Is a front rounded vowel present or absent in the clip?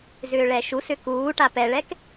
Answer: present